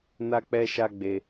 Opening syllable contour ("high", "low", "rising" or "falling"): high